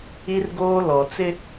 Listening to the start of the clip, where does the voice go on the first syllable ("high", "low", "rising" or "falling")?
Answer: high